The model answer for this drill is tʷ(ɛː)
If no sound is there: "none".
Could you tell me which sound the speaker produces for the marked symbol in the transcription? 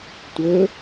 əː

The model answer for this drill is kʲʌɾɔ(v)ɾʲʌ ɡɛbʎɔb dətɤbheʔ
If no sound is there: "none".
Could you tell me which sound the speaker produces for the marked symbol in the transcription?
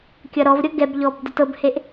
v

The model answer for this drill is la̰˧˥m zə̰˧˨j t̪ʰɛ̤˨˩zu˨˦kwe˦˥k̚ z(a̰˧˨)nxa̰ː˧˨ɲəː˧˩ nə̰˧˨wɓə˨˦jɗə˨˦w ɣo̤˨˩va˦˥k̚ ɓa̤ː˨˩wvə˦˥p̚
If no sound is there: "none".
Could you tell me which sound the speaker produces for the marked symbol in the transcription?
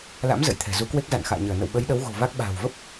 a̰˧˨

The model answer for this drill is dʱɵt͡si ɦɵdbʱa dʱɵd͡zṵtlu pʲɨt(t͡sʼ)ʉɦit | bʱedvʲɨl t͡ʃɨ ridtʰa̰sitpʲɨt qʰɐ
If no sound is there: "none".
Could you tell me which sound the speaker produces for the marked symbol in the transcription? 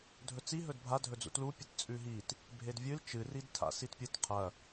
t͡sʼ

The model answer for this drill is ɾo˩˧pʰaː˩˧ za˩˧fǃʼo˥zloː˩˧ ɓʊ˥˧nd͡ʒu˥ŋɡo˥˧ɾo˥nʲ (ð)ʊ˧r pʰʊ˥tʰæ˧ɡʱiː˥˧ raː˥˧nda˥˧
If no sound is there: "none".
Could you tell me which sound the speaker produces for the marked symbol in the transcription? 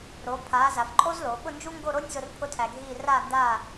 z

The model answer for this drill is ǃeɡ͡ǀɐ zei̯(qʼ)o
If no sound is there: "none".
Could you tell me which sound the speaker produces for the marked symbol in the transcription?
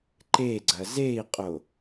qʼ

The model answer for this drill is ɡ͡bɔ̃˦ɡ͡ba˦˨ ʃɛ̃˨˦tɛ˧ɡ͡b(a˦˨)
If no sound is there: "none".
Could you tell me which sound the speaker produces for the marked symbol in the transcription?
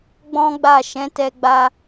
a˧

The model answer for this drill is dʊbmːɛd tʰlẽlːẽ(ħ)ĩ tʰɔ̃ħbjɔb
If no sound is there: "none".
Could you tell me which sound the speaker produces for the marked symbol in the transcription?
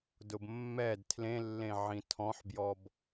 ʕ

